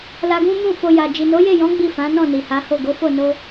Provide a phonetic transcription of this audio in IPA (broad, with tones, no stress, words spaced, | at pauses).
la˧ɡũ˦mũ˦˨ fo˧ja˨ d͡ʒi˨no˨˦je˦˨jɔ̃˨˦ ɡ͡bi˦˨fã˨˦nɔ̃˦˨ ni˨ha˨˦ho˦˨ ɡo˨˦fo˦˨ no˧